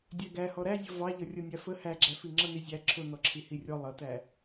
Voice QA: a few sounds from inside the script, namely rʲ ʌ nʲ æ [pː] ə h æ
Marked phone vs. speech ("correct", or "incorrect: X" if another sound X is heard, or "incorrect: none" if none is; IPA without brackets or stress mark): incorrect: f